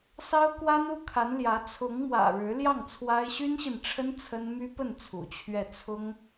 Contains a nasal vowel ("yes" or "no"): no